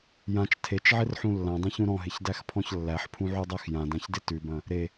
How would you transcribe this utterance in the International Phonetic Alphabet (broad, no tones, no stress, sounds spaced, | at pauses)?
j ã t͡ʃ tʰ e t͡ʃ ʕ ɪ r ħ ũ lː ã dˤ ẽ ç ũ ɾ ɔ̃ ɦ ɪ ç d æ x pʰ ɔ̃ ç lː æ ħ pʰ ũ ʕ u dˤ æ x j ã d ã ç d ɪ t ʉ b ɐ̃ | ɾ e